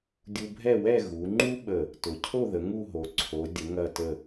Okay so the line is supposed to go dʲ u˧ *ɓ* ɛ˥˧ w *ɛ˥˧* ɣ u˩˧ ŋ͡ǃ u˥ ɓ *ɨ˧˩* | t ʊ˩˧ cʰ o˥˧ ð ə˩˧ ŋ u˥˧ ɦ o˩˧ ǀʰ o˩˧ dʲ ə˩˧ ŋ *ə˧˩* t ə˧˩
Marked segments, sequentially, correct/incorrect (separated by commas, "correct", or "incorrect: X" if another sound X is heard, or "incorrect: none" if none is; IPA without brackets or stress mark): incorrect: bʱ, correct, incorrect: ə˧˩, incorrect: ɐ˧˩